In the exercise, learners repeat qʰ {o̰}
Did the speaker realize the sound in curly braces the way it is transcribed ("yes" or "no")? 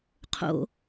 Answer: yes